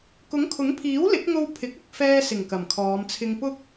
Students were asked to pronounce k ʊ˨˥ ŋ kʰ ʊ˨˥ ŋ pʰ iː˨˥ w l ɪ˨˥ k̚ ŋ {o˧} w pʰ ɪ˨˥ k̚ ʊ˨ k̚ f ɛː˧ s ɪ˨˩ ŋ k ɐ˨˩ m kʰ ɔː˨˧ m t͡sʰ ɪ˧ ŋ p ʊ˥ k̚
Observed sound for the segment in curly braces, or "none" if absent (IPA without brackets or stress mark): o˧